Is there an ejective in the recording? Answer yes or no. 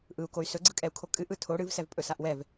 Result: yes